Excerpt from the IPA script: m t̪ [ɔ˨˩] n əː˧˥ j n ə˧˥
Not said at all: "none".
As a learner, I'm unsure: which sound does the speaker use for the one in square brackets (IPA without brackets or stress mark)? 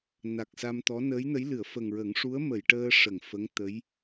ɔ˧˥